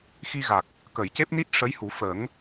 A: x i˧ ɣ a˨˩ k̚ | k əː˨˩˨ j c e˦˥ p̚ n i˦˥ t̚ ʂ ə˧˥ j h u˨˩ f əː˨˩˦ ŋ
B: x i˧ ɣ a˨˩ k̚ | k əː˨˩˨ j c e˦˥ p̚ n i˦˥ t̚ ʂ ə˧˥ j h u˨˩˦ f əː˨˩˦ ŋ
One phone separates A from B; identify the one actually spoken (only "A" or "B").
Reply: B